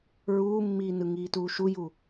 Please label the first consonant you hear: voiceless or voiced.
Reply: voiced